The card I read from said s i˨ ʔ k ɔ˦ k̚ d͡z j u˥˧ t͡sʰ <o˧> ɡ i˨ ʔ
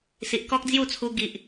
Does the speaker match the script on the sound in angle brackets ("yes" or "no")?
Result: no